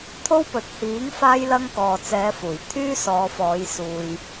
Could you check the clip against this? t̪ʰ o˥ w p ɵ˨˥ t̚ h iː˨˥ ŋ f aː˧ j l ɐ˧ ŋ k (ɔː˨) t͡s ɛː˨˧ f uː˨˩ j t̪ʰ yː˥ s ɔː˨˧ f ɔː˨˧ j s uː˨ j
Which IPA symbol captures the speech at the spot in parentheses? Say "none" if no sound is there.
ɔː˨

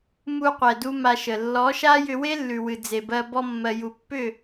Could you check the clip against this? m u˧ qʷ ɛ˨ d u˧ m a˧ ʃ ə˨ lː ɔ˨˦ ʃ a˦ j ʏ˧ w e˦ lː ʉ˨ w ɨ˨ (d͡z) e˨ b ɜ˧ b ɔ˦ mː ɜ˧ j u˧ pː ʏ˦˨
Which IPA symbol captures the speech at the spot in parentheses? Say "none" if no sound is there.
d͡z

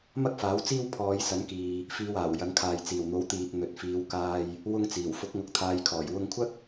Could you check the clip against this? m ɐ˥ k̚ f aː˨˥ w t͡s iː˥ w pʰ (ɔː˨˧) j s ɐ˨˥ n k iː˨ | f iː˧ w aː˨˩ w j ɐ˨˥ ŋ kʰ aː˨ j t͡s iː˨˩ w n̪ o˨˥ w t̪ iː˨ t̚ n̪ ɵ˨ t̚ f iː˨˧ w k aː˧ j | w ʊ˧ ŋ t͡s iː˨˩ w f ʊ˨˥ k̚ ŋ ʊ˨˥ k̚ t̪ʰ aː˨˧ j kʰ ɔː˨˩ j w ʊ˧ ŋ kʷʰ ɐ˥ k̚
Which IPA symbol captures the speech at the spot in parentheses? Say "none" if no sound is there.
ɔː˨˧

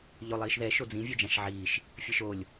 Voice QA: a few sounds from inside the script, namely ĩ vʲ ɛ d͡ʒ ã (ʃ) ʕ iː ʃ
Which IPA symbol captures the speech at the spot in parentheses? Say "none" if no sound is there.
ʃ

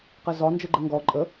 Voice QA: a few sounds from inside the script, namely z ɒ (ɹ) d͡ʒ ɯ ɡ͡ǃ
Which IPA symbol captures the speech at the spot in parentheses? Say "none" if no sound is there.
n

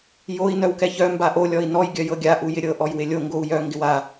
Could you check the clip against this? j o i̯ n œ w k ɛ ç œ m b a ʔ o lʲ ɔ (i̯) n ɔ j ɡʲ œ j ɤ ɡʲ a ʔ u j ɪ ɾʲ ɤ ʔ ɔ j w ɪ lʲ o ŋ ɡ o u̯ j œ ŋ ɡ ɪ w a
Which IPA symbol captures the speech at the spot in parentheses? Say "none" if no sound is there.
i̯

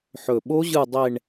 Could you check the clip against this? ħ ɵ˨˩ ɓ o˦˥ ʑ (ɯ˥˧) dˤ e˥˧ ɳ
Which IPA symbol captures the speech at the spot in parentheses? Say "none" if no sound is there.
ɯ˥˧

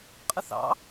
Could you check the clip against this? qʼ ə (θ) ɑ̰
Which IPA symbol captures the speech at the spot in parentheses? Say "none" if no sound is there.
θ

